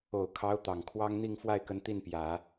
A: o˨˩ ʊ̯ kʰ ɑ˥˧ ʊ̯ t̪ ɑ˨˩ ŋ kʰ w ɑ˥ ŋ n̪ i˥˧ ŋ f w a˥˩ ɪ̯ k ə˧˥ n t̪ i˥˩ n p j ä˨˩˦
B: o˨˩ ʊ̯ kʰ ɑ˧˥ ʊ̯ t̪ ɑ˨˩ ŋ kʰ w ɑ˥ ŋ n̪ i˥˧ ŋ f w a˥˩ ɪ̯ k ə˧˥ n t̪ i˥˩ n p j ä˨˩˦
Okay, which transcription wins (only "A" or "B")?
B